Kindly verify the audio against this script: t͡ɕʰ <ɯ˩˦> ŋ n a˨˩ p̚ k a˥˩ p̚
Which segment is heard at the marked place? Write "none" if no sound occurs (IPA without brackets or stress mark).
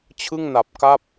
ɯ˥˩